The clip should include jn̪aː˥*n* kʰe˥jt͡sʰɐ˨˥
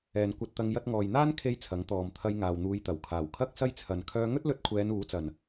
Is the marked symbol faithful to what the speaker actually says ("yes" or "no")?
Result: yes